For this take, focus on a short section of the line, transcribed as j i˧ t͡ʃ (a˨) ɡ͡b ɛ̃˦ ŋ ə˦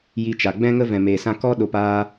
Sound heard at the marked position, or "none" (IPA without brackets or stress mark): a˨